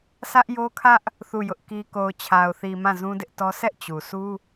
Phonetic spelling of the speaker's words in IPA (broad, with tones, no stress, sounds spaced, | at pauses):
sʰ ä˦ ʔ j o˦ kʰ ä˦ ʔ | θ u˦˨ j ʊ˦ ʔ k i˦ k o˨ ʊ̯ t͡ɕʰ a˨ ʊ̯ θ i˨ m ã˦˨ z ũ˦ d ɪ˦ ʔ t ɔ˦ s ɛ˦ ʔ t͡ɕ u˨ s u˦